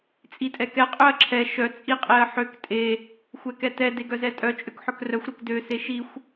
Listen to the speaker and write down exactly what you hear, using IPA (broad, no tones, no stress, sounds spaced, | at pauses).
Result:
t͡sʼ i tʼ ɛ k ɛ qʼ ø ɐ̯ ǁʰ ɛ ʃ œ t͡sʼ i qʼ e ɐ̯ ħ ø k tʼ e | xʷ ɛ k ɛ t ɛ d e ɡ œ z ɛ tʼ œ t͡ʃʼ ø k ħ œ k r œ xʷ ɾ e k d ø s e ʃ i xʷ